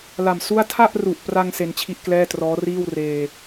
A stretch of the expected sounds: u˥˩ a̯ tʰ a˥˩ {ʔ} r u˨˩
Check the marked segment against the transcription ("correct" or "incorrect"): correct